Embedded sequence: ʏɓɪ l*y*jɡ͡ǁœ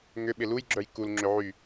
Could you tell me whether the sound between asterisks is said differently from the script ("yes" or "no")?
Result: yes